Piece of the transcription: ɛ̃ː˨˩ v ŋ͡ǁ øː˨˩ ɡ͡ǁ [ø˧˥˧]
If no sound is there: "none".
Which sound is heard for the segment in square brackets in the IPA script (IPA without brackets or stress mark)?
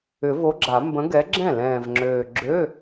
ø˧˥˧